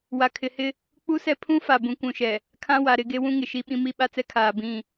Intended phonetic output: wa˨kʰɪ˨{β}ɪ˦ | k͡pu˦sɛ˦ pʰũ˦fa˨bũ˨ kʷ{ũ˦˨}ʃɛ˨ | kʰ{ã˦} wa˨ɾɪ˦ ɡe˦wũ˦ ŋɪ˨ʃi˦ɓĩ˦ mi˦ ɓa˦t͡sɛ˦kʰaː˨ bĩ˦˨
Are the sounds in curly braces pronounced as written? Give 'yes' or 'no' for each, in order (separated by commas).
no, no, yes